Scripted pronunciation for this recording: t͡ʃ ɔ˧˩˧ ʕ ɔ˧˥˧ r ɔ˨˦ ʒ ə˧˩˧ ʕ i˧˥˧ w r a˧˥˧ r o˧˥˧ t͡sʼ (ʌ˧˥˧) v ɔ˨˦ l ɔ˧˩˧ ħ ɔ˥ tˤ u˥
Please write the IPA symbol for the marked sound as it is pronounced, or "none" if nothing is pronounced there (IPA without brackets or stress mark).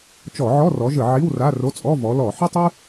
ɔ˧˥˧